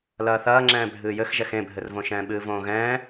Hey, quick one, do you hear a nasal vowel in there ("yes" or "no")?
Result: yes